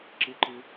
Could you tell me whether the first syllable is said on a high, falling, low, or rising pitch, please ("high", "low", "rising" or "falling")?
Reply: high